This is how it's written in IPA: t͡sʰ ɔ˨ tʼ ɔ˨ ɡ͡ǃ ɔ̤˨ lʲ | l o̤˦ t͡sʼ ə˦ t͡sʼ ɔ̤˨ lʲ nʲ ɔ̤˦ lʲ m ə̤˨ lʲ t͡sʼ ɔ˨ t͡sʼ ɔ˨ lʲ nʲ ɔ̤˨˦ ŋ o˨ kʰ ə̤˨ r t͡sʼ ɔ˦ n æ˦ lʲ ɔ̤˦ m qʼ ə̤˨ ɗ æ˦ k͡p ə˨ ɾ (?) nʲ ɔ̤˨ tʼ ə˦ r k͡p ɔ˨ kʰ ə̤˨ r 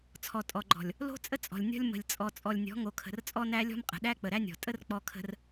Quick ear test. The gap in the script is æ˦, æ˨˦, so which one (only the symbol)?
æ˦